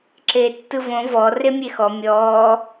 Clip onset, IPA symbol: ǁ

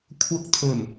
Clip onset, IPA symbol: kʷʰ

